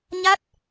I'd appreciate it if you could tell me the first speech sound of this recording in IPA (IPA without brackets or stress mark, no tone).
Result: ɲ